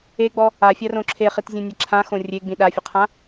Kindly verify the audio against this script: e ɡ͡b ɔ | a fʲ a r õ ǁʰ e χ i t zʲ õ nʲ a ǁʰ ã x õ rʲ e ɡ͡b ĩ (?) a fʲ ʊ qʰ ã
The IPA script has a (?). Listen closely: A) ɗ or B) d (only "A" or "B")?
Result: A